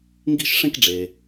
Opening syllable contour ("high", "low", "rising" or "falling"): high